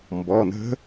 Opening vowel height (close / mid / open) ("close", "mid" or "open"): mid